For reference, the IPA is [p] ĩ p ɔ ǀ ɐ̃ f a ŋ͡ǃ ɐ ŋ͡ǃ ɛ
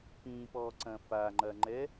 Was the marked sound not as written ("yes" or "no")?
no